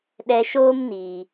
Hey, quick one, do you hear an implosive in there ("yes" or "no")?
yes